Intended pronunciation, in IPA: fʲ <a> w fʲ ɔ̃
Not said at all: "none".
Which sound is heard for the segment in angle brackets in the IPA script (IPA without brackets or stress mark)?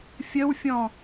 ə